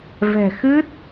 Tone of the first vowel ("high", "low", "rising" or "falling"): low